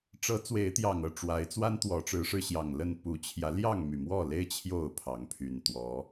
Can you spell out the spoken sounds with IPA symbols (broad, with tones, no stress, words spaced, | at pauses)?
ʈ͡ʂɤ˨˦ t͡swe˨˦ɪ̯t̪jɑ˨˩ŋɤ˥˨ ʈ͡ʂwa˨˦ɪ̯t͡swa˦n t̪wɔ˨˦ʈ͡ʂɻ̩˨˦ʂɻ̩˧ɕjɑ˨˩ŋ lə˥˨n pu˨˩t͡ɕʰjä˨˦ ljɑ˥˨ŋmy˨˩mwɔ˥˨le˦ɪ̯ t͡ɕʰjo˥˨ʊ̯pʰɑ˨˦ŋpʰy˨˩n t̪wɔ˨˦